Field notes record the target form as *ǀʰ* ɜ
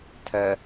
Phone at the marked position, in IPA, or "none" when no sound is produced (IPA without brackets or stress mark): tʰ